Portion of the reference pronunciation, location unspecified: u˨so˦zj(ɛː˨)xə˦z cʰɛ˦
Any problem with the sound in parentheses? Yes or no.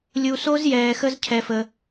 no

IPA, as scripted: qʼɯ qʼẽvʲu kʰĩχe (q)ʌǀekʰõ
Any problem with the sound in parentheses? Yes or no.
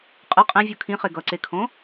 yes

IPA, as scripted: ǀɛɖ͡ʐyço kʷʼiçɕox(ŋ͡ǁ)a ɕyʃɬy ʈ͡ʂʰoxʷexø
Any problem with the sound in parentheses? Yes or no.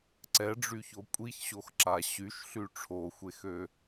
yes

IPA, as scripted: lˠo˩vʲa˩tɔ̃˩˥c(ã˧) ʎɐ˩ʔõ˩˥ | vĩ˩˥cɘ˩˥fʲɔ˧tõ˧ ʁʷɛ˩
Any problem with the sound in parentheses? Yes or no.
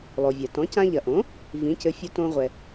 no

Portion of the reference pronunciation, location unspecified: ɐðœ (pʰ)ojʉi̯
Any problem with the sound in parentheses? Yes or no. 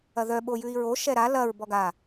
yes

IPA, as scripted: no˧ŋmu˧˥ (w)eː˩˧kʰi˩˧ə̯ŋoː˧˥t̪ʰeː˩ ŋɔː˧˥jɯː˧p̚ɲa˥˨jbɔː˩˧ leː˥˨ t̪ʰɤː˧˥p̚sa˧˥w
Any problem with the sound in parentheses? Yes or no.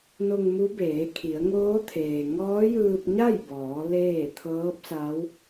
yes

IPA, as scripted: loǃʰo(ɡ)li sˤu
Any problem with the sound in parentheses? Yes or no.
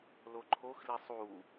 yes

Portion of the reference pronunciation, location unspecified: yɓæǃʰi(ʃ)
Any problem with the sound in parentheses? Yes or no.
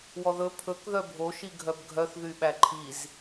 yes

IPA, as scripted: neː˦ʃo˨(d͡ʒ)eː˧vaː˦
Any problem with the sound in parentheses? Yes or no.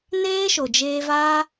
no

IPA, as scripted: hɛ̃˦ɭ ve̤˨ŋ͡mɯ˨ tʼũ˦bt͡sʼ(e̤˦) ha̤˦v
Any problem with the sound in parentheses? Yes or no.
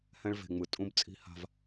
yes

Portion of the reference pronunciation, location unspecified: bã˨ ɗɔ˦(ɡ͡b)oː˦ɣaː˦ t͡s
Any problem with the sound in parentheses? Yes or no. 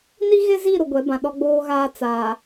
no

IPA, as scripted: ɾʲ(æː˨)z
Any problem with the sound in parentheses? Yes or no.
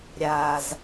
yes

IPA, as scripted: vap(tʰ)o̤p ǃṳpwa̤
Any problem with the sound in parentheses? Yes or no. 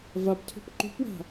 no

